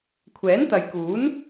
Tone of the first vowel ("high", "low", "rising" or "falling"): rising